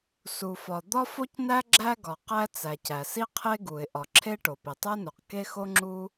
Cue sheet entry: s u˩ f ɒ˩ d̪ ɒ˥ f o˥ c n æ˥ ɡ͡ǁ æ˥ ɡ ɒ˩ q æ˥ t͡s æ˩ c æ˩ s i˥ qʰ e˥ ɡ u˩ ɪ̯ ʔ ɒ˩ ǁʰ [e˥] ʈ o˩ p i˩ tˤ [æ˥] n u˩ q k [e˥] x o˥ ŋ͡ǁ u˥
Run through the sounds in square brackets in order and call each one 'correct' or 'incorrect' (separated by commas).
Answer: correct, correct, correct